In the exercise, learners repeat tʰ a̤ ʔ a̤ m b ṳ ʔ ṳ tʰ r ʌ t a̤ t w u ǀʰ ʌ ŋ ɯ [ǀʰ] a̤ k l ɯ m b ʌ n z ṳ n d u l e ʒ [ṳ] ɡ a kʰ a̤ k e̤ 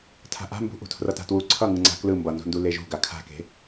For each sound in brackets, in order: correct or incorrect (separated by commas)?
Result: incorrect, correct